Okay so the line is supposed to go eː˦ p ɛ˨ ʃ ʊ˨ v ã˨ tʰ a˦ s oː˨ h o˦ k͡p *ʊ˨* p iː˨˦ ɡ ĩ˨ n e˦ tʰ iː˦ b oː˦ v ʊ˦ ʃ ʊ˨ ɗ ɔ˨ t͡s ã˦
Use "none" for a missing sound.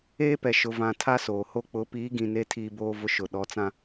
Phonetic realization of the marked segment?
ʊ˨˦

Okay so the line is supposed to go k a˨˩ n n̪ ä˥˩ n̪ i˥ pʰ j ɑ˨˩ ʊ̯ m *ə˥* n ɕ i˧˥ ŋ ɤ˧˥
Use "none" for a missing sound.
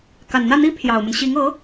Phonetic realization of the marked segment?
ə˦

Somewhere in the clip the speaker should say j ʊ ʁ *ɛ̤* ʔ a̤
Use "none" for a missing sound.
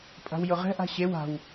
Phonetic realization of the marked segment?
ɛ̤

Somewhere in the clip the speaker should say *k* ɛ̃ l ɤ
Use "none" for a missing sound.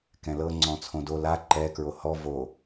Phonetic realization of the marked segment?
k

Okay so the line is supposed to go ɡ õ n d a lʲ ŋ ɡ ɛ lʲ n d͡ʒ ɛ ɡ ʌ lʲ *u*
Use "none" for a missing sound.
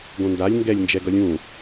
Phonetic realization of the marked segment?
ũ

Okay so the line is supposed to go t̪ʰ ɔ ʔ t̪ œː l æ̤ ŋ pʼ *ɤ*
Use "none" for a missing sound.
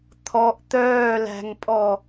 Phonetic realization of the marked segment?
ɔ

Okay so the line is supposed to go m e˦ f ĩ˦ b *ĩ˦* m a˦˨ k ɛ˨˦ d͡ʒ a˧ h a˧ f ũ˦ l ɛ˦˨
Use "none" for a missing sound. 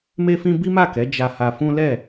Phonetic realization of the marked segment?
i˦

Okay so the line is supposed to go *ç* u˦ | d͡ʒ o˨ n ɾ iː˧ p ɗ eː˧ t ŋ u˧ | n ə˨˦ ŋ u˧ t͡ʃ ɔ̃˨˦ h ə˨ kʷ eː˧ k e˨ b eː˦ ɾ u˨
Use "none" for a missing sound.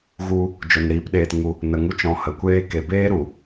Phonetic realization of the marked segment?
ɣ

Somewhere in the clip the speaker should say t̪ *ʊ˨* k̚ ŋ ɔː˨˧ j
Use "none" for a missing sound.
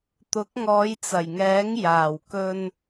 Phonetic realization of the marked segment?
ʊ˨˥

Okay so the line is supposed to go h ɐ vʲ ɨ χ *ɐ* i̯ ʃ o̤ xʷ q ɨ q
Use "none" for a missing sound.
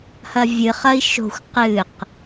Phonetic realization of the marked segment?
ɐ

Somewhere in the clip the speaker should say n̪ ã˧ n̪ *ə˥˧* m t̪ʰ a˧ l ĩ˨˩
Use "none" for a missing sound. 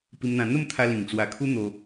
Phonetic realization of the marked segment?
ə˥˧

